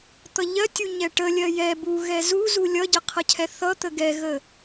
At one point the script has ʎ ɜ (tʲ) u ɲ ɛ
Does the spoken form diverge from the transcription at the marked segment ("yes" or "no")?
no